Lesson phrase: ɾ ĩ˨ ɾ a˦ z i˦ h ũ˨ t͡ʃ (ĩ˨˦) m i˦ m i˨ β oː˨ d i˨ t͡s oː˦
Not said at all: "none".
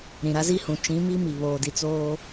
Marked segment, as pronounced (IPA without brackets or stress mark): ĩ˨˦